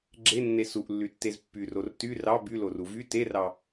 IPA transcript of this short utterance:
ɡ͡ǁ e nː e s u ʔ lː y tː e z pː y r o r t y r ɑ b y l o r u v y t e r ɑ

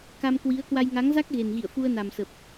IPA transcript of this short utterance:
k a˧ m k w i˨˦ ə̯ k w a˧ j ŋ a˨˦ ŋ z a˦˥ k̚ ɣ e˨˩ n ɣ ḭ˧˨ ə̯ f u˧ ə̯ n a˨˩ m s ə˨˩ p̚

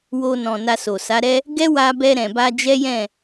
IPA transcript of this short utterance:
w o˧ n ɔ̃˨ n a˧ s o˨ s a˨˦ ɾ ɛ˦ | ɡ ɛ˦ w a˧ b ɛ˧ ɾ ɛ̃˨ b a˧ d͡ʒ ɛ˦ j ɛ̃˦˨

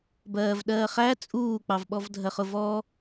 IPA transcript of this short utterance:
b ɜː v ɗ ɜː χ æ t͡sʼ uː k͡p ɑ v ɓ ɔ v dʱ ɜ χ ʊ v ɔ

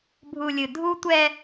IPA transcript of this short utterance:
bʱ u˨ lʲ ɨ˨ dʱ u˦ tʷ ɛ˦

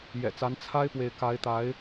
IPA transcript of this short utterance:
j ɛ̰˨˩ t͡s a˨˦ n t͡sʰ a˦ ɪ̯ p w e˨ ɪ̯ k a˨˦ ɪ̯ t̪ a˨˦ ɪ̯

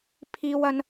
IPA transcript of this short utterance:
pʰ iː˥ w ɐ˥ n

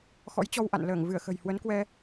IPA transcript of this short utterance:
x ɔ̰˧˥ j t͡ɕ ɔ˧ w ʔ a̰˧˨ n l əː˧˩ ŋ v ɨ˧˩ ə̯ x ə̤˨˩ j h w ə˨˦ n k w ɛ˧

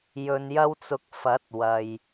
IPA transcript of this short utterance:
j ɵ˧ n j ɐ˥ w t͡s ʊ˧ k̚ f ɐ˨˥ t̚ w ɐ˨ j

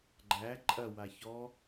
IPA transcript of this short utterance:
ɡ͡ǃ æ ǃʼ ɐ w a ç ɔ

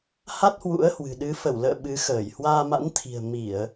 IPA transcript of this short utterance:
h a˦˥ t̚ h w ṵ˧˥ ə̯ h w ɨ̤˨˩ ɗ ɨ˨˦ f ə˧˩ w l ə̰ː˧˨ ɓ ɨ˨˦ x əː˧˩ j h w aː˧ m a̰˧˥ n t̪ʰ i̤˨˩ ə̯ m i˧˩˨ ə̯

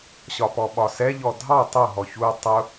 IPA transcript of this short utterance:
ɕ ɒ p ɔ ɓ ɒ s ɛ ʎ ɔ dʱ ɑ tˤ ʊ ɦ ɔ ç u tˤ ʊ

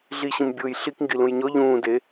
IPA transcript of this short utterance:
ɮ i ɕ ĩ m bʲ ʊː j ɬ i k ŋ ɡ i l ũ j ɲ ɔ ʎ ũː d e

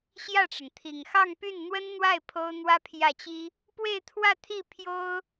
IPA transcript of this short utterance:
ɕ j ä˥˩ ʈ͡ʂ ə˩ n t̪ʰ i˨˩ ŋ x ɑ˥˧ ŋ p y˥˩ n n̪ w ə˥ n n̪ w a˥˩ ɪ̯ pʰ o˥ ʊ̯ n̪ w ä˥ pʰ j ä˥˩ t͡ɕ i˥ | p w e˥˧ ɪ̯ t̪ʰ w ä˥˧ t̪ʰ i˥˩ pʰ j o˥ ʊ̯

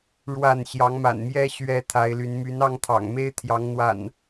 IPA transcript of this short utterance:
ɻ w a˥˨ n ɕ j ɑ˨˦ ŋ m a̰˨˩ n m j ɛ˦ ɕ ɥ ɛ˦ t̪ʰ a˨˦ ɪ̯ l y˨˦ n m y˨˦ n ɑ˧ ŋ t̪ʰ ɑ̰˨˩ ŋ m e˦ ɪ̯ t̪ʰ j ɑ˨˦ ŋ n̪ w a̰˨˩ n

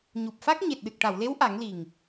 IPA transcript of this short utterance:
ɲ u˨˩ p̚ f a˦˥ k̚ ɲ e˨˩ t̚ ɗ ɨ˨˩ k̚ ʈ a˨˩˨ w l e˧˥ w ʔ a˨˩˦ ŋ l i˨˩ ŋ

